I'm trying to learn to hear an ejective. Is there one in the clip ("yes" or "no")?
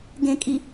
yes